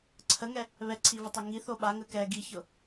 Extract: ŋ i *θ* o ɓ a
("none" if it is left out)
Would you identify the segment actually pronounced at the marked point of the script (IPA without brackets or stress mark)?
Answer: θ